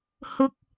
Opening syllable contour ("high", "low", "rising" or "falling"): high